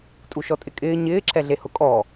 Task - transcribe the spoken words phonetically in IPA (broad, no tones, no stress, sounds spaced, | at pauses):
tʼ u ʃ ɔ tʼ ɪ kʼ ɪː ɲ ɪː ǁʰ ɛ ɮ e h ʊ kʼ ɔ